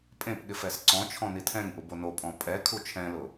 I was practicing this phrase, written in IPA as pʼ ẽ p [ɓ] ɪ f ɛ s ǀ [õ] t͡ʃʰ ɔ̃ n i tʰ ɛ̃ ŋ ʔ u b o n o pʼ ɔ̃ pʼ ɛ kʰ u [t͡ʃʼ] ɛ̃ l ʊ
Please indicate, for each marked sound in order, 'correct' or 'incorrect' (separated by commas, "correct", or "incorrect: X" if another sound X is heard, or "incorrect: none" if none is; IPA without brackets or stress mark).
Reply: incorrect: ɠ, incorrect: ɔ̃, incorrect: t͡ʃʰ